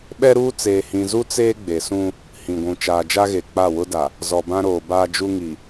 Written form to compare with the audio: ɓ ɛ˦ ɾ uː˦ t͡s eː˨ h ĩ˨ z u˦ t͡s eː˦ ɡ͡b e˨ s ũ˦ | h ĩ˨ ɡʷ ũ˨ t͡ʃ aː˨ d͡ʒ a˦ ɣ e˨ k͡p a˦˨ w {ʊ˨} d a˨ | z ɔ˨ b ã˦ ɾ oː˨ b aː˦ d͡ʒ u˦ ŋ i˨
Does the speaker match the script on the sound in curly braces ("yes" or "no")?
no